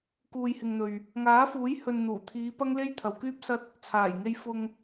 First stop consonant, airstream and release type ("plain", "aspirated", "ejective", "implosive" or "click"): plain